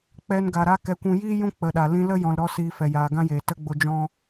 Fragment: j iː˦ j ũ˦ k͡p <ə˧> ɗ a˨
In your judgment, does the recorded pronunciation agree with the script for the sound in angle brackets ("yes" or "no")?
no